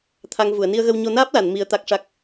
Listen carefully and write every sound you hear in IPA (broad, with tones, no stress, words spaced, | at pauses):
t̪ʰa˧ŋ vu˨˩˨ə̯ni˧ə̯ɣə˧wɲo˧ naː˦˥p̚la˨˩˨n mi˧ə̯t̪a˦˥k̚ʂa˦˥k̚